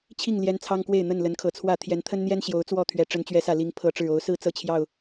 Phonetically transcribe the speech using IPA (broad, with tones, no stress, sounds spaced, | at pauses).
t͡ɕʰ i˥˨ ŋ l j ɛ˦ n t͡sʰ ɑ˦ ŋ k w e˥˨ ɪ̯ n̪ ə˥˨ n l ə˨˦ n kʰ ɤ˨˩ t͡sʰ w ä˥˨ t̪ʰ j ɛ˨˦ n t̪ʰ ə˦ n n̪ j ɛ˦ n ɕ j o˨˦ ʊ̯ t͡s w ɔ˥˨ t̪ʰ ɥ ɛ˨˦ ʈ͡ʂ ə˨˦ n t͡ɕ ɥ ɛ˨˦ s ä˨˩ l i˨˦ ŋ pʰ ɤ˨˦ ʈ͡ʂ ɻ̩˨˩ o˨˦ ʊ̯ s ɹ̩˦ t͡s ɤ˥˨ t͡ɕʰ j ɑ˥˨ ʊ̯